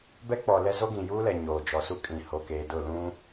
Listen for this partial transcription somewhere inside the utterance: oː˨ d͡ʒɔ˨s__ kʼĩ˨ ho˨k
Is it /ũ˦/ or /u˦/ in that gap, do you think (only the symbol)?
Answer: u˦